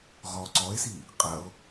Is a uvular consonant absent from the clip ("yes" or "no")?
no